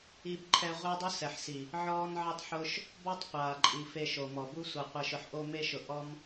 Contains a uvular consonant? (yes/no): yes